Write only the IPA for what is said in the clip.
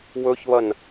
w ɵ ç β ɐ n

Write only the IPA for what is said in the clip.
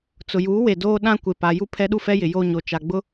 t͡s ʊ˨ j uː˨˦ w e˨ d oː˦ ɗ ã˦ kʷ e˨ p a˨ j u˦ pʰ ɛ˦ ɗ u˦ f ɛ˦ j ɪ˨ j o˦ ɲ o˨ t͡ʃ a˨ ɡ͡b ʊ˦

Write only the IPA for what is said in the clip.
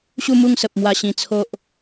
ɕ u˥˧ m u˥˧ ŋ s ə˨ p̚ m w a˧ ɕ ĩ˧ t͡sʰ o˦ ʔ

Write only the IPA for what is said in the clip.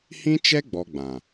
h ĩ˦ t͡ʃ ɛ˦ ɡ͡b ɔ˧ ɡ͡b ã˨

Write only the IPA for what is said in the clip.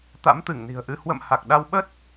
t̪ a̰˧˥ m t̪ ɨ˧˩ ŋ n i̤˨˩ ə̯ ʔ ɨ˧ h w ə̰˧˨ m h a˨˩ k̚ ɗ a˧ w ɓ ə˦˥ t̚

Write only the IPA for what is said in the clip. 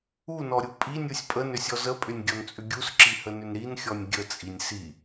u n ɔ ɾʲ u pʼ i nʲ u sʲ pʼ ə n ʏ sʲ ɔ z ə pʼ ʏ nʲ ɡʲ ɔ n t͡sʼ ʏ ɡʲ u s ǁ i h ə n ʏ n ɾ i n xʲ ɔ nʲ ɡʲ ə t͡sʼ i nʲ s i

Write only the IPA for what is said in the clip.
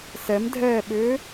s ɛ m dʱ ɛː ɓ ʏː

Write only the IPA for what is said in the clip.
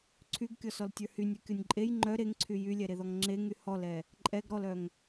ǀʰ y ɡ kʲ ɔ s ɔ l tʲ ə˞ h y nʲ œ kʲ ɔ nʲ ǃʼ e j ŋ͡ǃ œ ɾ e ŋ ǀʰ y j y lʲ ɛ ɾ e ð ɔ ŋ ŋ͡ǁ e ŋ y h ɔ l ɛ | ǃʼ ɛ ɡ ɾ ɔ l œ ŋ

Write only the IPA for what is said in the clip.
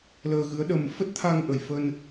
l əː˧ ɣ ɨ˨˦ ə̯ ɗ ə˧ m f ə˦˥ t̚ t̪ʰ a˧ ŋ ʔ ə˨˩ j f ə˧ n

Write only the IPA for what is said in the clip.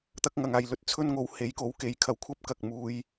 t̪ ɐ˥ k̚ ŋ ɐ˨˧ ŋ aː˧ j l ɵ˧ t̚ t͡sʰ ɵ˥ n ŋ o˧ w h e˨˥ j k o˨˥ w k e˨ j kʰ ɐ˨˥ w kʷʰ ɐ˥ p̚ k ɐ˨ k̚ m uː˧ j

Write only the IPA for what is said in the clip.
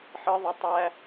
ħ ə ðˤ ə tˤ æ

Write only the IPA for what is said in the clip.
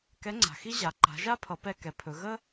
k ɛ˧˥ ŋ͡ǀ a̤˩ x i˥ ʑ a˩˧ ǃ a̤˩˧ ʒ a˥ pʰ ʌ˩˧ p ɛ˧ k ɛ˩˧ pʰ ɵ˩˧ ɣ ə˥

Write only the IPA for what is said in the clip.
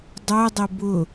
dˤ o dˤ ɪ b ʊ

